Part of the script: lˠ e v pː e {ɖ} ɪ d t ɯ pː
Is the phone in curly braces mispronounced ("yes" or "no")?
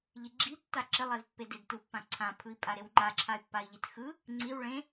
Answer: yes